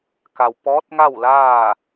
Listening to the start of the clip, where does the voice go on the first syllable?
low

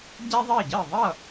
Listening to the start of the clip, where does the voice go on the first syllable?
high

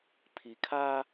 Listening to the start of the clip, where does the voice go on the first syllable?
low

